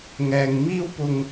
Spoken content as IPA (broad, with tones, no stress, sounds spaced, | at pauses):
ŋ ɛː˧ ŋ m iː˧ w p ʊ˨ ŋ